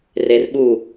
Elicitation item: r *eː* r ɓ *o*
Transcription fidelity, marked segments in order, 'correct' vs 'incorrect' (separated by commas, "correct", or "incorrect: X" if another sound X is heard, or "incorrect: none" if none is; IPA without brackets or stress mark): incorrect: e, incorrect: u